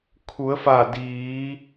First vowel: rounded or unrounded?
rounded